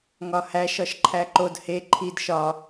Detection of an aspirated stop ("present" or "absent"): present